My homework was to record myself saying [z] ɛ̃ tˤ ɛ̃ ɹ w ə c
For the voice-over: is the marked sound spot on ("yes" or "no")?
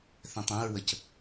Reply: no